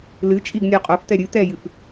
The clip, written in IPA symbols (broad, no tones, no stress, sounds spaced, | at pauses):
l ɨ t͡ʃʼ i ɡ nʲ ɔ qʼ o f t̪ ɛ ɾʲ ɨ t̪ ɛ j ɨ f